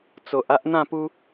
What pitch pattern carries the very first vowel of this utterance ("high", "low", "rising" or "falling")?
low